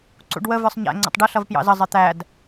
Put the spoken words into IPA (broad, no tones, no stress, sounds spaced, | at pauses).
ǀ ṵ ɖ w ə v ə˞ sˤ ɲ æ̰ ŋ͡ǀ ə̰ tˤ ɖ ə ɬ ʌ v p j ɑ̰ z ə zˤ ɪ t̪ æ d